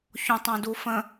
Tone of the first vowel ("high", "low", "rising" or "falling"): low